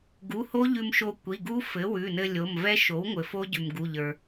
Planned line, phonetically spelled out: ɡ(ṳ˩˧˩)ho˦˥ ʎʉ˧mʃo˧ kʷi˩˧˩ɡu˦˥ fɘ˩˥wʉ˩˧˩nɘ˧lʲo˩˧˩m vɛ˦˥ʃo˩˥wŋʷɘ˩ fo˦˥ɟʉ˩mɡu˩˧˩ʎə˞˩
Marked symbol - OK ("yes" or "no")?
no